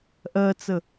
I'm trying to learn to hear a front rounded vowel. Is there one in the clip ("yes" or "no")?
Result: no